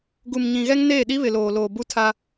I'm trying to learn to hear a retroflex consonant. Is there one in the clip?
no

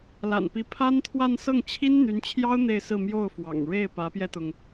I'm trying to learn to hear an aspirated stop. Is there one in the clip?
yes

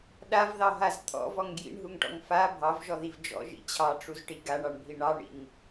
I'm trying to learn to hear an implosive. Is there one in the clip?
yes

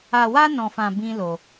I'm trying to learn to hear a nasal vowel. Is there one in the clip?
yes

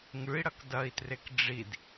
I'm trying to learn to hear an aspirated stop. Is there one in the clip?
no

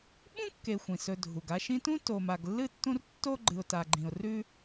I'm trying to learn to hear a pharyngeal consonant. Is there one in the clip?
no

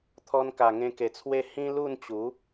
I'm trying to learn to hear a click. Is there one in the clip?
no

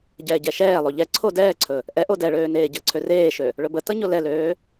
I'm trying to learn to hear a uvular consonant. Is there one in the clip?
no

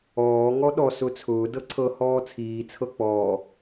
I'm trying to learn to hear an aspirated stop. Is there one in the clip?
yes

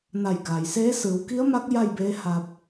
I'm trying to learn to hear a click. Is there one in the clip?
no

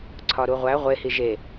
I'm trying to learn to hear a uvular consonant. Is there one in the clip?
yes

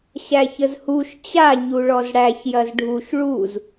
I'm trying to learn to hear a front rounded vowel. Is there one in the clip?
no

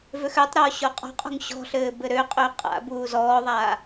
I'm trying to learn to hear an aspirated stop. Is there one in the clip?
no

